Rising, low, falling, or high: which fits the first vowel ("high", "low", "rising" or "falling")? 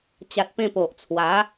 low